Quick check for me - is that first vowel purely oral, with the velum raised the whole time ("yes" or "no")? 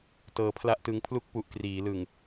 yes